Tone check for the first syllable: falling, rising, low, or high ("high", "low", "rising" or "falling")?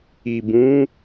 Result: low